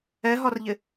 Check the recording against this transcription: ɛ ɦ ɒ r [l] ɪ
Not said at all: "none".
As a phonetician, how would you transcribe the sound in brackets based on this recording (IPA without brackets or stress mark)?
ʎ